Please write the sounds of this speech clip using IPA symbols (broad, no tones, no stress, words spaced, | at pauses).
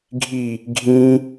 ɡʱi | ɡʱĩ